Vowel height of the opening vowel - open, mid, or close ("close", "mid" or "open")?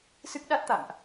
close